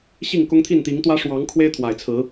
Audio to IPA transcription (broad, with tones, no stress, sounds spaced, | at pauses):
ɕ i˥˨ ŋ k ʊ˦ ŋ t̪ʰ i˥˨ n t̪ i˨˦ ŋ t̪ w ä˦ ʂ w ɑ˨˦ ŋ kʰ w e˦ ɪ̯ t̪ʰ w a˨˩ ɪ̯ t͡sʰ ɹ̩˨˦